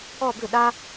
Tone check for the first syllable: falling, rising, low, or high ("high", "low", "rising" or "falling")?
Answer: falling